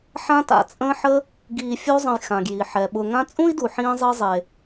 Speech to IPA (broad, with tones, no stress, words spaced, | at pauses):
ħã˦ta̰˨t͡sʼə̃ː˦ ħə˦ | ɡiː˨fʲu˦zˤə̃˨j xã˩ɡji˩ ħɛ˩ɓʊ˨ ŋã˦t͡sʼũ˥i̯du˨ ħĩː˦zˤi˦zˤe˨